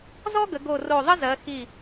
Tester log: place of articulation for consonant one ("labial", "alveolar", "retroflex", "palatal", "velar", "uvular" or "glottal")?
alveolar